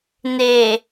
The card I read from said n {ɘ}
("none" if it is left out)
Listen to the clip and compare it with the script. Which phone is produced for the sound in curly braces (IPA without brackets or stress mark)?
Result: e